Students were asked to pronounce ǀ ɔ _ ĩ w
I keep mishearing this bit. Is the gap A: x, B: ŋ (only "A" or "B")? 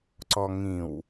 B